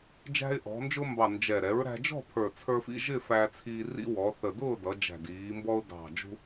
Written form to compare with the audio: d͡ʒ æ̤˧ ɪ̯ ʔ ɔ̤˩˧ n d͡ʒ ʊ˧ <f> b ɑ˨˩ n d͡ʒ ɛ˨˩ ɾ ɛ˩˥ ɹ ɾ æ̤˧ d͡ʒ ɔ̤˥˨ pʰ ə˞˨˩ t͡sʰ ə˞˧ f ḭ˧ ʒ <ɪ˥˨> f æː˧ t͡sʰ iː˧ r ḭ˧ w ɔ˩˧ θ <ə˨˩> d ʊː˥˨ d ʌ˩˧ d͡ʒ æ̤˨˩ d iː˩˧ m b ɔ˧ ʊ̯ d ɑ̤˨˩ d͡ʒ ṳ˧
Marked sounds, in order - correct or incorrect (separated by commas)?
incorrect, correct, correct